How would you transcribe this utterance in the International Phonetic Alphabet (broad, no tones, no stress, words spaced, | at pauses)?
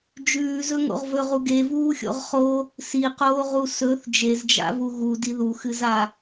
d͡ʒʉːzɵŋo̰ʁ vɵʁu ɡevuːxʲo̰ʁ χo | siqoːʁu sɵθ d͡ʒezd͡ʒa̰vu ɣudi ðuxɨza